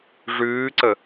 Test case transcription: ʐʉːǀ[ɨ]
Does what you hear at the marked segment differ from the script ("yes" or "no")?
yes